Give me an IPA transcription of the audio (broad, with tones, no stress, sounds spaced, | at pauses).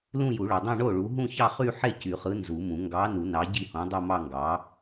l ũ˥˧ j u˨˩˦ ɭ o˨ dˤ õ˥˧ ɳ o˥˩ ɭ u˨˥ ɦ ũ˥˧ ç ɑ˥˧ χ y˥˧ ħ e˥˩ c y˨˩˦ χ ɯ˨˥ n z u˨˩˦ m ũ˨˩˦ ŋ ɡ ɑ˨˥ n u˨˩˦ n ɑ˨˥ ɟ i˥˩ h õ˨˥ dˤ o˥˧ m ɑ˥˧ ŋ ɡ ɑ˨˥